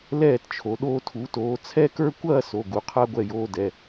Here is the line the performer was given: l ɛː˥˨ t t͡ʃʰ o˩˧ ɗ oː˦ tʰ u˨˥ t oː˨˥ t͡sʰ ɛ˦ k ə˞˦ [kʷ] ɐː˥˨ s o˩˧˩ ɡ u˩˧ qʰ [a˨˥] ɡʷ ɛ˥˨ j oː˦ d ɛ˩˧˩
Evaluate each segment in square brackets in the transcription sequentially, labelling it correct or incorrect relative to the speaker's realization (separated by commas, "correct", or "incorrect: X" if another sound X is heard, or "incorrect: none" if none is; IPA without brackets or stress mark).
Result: correct, incorrect: a˦